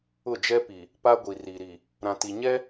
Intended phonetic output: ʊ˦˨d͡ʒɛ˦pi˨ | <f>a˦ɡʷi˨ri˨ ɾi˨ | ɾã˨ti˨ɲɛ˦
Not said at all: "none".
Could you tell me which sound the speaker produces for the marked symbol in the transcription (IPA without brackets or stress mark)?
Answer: p